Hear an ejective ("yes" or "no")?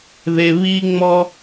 no